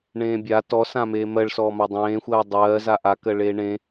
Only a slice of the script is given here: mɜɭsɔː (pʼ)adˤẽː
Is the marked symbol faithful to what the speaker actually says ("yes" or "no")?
no